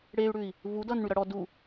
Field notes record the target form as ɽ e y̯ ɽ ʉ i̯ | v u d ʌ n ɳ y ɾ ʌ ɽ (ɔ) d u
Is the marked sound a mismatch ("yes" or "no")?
no